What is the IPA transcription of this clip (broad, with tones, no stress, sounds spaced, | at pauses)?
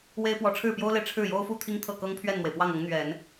w e˥ ɪ̯ p w ɔ˧˥ ʈ͡ʂʰ ɻ̩˥˩ p j o˥ ʊ̯ l e˨ ɪ̯ ʈ͡ʂʰ ɻ̩˥˩ j o˥ ʊ̯ f u˥˩ t̪ʰ i˥ ŋ t̪ʰ ɤ˥˩ k ɤ˥ ŋ pʰ ɥ ɛ˥˩ n n̪ w e˩ ɪ̯ p w ɑ˥˩ ŋ ɤ˧˥ ŋ n̪ ɥ ɛ˨˩˦ n